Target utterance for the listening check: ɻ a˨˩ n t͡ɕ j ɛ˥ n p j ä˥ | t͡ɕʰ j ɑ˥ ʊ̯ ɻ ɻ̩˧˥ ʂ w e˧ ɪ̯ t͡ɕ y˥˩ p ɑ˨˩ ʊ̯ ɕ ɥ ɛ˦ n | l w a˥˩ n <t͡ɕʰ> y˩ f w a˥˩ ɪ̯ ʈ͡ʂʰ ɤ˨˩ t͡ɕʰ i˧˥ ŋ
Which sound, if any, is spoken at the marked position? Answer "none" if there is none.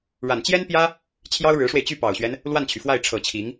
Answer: t͡ɕʰ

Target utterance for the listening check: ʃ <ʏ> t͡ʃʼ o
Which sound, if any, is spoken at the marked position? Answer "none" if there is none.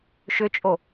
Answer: ʏ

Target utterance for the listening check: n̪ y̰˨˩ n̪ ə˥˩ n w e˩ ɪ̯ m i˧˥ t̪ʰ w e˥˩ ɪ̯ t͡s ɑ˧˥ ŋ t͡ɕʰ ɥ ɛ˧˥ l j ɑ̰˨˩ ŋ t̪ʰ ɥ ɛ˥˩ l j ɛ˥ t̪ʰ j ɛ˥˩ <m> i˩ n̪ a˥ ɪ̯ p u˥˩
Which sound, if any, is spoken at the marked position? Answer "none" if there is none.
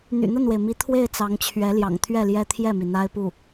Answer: m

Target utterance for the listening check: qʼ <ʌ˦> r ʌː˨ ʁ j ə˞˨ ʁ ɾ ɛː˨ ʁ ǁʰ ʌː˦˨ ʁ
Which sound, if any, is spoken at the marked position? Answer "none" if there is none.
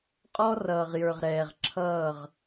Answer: ɔ˦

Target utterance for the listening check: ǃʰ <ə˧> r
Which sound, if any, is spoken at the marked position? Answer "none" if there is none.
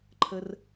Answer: ə˧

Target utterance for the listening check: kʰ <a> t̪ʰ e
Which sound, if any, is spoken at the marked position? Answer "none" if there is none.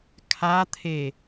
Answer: a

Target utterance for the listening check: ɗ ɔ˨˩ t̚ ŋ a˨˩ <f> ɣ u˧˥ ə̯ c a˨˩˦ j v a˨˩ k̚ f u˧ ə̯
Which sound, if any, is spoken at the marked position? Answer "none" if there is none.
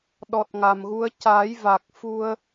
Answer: m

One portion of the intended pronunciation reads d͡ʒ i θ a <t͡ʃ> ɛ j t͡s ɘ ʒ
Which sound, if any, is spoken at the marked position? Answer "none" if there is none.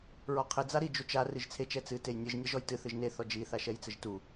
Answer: ʃ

